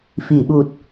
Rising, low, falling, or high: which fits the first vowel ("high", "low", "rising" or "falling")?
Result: low